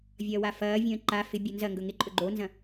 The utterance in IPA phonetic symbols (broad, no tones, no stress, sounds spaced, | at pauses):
vʲ ɐː w a f ɐː vʲ ə̃ː ǃ a f ɪ bʲ o n z ɐ ŋ ɡ ɵ ŋ ɪ ǃʼ ɵ ɡ͡ǃ o n z ɐ̃